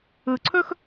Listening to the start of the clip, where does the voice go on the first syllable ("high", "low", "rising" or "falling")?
low